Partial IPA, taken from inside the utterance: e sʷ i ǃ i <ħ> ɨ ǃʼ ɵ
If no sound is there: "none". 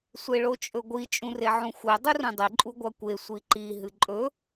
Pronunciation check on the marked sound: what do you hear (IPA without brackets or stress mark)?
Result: ɦ